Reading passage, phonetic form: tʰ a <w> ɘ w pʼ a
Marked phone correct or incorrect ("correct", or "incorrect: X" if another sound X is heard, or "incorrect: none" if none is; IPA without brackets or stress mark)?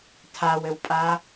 correct